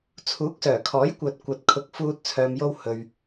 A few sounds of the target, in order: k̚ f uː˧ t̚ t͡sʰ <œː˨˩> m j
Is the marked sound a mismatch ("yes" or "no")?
yes